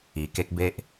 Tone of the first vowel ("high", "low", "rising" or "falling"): low